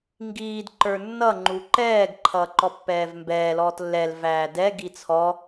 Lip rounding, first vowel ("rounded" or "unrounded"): unrounded